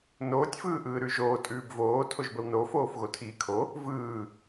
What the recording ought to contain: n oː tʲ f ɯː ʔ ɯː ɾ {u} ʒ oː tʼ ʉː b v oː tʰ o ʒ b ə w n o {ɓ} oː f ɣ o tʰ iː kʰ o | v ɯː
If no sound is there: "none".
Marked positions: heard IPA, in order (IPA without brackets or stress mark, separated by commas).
ʉ, f